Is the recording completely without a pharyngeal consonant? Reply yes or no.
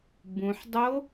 no